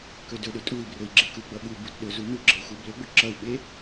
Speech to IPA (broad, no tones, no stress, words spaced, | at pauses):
kɵdɵɗɵ tʼui̯brɵi̯ ɡ͡ǁeku ɡ͡bʌɓu butɗɵzu nuɡ͡ǁəu̯xu blɵɡ͡bɵ ǁʌu̯ɓe